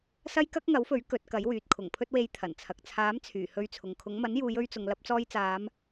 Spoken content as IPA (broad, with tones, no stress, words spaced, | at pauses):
sɐ˥jkɐ˥k̚ŋɐ˨˥wfɵ˨˥ɥ kɵ˨˥t̚ kɐ˨˥jwyː˨t̚ kʰʊ˨˩ŋpʰɵ˧t̚we˨˧j t̪ʰɐ˨˩nt͡sʰɐ˨k̚ t͡sʰaː˨˥m t͡sʰyː˨˩hɵ˧ɥt͡sʰʊ˨ŋkʰʊ˨˥ŋ mɐ˨˥njuː˨˧jɵ˧ɥt͡sʊ˨ŋ lɐ˧p̚ t͡sɔː˧jt͡saː˨˧m